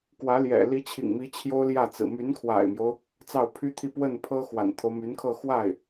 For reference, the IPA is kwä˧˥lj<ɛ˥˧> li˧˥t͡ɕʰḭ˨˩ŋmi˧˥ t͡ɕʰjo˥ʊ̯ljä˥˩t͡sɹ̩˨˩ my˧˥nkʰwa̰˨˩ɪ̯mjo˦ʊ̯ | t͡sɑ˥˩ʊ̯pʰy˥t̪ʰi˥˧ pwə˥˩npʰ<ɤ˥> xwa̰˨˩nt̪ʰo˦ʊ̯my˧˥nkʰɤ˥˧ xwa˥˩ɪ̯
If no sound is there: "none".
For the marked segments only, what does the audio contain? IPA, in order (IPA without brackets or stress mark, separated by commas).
ɛ̰˨˩, ɤ˥